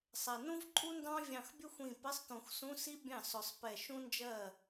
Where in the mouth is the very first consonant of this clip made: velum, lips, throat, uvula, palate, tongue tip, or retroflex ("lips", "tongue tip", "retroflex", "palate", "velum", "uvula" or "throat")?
tongue tip